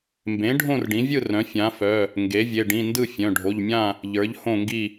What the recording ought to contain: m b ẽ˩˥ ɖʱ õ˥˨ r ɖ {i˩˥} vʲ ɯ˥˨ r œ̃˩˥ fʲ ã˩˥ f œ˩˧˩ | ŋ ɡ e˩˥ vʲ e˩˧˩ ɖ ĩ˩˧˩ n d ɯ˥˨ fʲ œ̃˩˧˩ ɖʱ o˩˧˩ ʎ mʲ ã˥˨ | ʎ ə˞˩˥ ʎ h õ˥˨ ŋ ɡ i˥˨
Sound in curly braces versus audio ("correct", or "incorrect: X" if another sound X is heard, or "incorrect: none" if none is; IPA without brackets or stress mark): incorrect: ĩ˩˥